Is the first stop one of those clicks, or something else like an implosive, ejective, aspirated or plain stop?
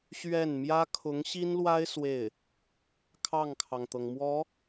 aspirated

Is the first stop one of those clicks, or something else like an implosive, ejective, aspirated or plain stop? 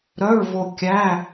plain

